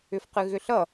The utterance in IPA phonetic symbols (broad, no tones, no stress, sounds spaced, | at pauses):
ʏ f q ɨ ɣ ʏ ɬ ʌ